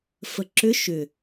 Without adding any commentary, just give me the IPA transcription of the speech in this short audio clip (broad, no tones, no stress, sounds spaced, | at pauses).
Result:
f ə ǁ ʏ ʃ ʏ